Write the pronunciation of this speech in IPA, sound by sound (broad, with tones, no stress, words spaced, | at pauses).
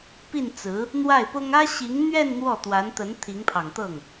pi˥˩nt͡sɹ̩˧˥ | n̪wa˥˩ɪ̯pʊ˥ŋ ä˥ɕi˧˥ŋn̪ɥɛ˥˧n n̪wɔ˥˩t̪wa˧˥nt̪ə˧˥n t̪ʰi˧˥ŋpʰɑ˨˩ŋt̪ɤ˥˩ŋ